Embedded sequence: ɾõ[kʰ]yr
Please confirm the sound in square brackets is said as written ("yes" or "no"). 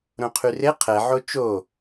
no